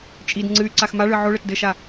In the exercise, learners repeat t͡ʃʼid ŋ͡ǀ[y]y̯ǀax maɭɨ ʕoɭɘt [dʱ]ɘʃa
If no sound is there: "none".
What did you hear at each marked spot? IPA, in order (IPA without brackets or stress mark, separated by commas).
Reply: ɨ, d